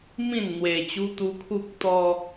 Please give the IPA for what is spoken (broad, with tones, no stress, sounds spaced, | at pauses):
m ĩ˥˧ n n̪ w e˧ t͡ɕ u˦ t̪ u˦ kʰ u˦ k̚ t̪ ɔ˦